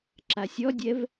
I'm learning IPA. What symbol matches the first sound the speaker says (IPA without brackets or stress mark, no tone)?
ǁ